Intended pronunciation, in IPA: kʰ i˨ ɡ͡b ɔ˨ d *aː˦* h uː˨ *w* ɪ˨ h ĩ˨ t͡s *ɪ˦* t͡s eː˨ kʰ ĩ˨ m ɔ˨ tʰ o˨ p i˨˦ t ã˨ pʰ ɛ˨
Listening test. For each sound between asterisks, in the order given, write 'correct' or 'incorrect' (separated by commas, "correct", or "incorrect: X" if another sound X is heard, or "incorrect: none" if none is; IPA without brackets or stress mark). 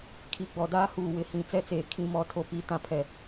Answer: correct, correct, incorrect: ɛ˦